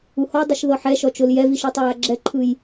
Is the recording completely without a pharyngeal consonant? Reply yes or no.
no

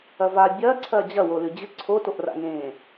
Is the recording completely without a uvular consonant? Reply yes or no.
yes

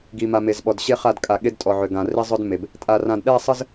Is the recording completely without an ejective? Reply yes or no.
no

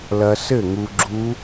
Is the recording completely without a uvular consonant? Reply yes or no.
yes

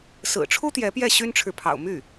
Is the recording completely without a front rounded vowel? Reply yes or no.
no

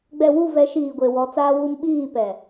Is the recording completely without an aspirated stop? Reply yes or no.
yes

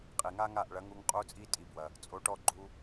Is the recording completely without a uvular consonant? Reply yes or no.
no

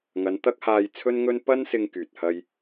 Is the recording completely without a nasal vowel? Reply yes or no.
yes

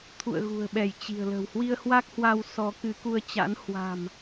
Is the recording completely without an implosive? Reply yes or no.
no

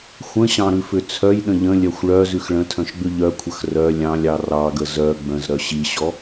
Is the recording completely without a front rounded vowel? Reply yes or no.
no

